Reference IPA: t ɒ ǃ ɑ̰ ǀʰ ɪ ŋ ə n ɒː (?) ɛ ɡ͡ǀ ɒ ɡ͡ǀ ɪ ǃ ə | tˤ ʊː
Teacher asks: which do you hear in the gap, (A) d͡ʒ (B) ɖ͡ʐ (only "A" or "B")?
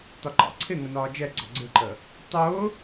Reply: A